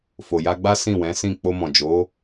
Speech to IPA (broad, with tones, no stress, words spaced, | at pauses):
fo˨ja˧ɡ͡ba˦ sĩ˦˨wɛ̃˨˦sĩ˦˨ k͡po˧mɔ̃˨d͡ʒo˨˦